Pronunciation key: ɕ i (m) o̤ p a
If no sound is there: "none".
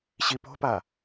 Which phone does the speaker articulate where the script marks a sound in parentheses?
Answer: p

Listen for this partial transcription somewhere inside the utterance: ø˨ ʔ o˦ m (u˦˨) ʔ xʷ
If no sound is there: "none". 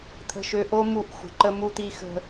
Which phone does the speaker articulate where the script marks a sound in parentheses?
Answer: u˦˨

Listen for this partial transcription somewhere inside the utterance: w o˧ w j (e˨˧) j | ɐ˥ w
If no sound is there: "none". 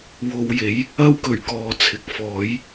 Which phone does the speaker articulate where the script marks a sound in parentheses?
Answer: e˨˥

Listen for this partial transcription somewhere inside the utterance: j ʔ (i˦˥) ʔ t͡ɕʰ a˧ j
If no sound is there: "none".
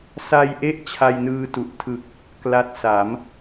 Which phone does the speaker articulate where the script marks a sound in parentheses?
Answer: e˦˥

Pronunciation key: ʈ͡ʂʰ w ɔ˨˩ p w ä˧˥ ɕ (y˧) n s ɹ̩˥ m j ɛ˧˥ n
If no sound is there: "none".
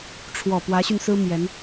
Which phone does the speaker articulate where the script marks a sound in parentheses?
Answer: y˧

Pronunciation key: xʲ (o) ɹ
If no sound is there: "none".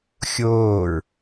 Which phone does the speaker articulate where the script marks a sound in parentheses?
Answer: oː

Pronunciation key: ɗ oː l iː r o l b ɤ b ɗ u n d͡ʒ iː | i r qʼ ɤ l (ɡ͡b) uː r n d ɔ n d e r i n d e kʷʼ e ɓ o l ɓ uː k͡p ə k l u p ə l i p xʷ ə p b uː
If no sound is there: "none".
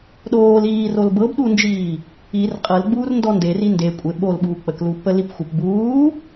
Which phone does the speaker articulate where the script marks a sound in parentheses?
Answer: ɡ͡b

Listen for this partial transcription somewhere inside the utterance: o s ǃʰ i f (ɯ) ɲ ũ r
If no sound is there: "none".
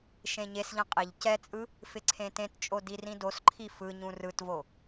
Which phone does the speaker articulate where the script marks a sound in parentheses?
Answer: ɯ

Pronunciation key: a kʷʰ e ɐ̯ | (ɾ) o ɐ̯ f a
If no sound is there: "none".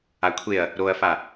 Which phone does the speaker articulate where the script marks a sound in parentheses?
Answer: ɾ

